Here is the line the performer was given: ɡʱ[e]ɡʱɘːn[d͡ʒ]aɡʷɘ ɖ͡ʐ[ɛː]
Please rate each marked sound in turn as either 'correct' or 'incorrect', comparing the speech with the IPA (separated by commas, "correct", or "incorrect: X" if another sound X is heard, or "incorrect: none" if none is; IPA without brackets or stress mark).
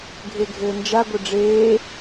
correct, correct, incorrect: eː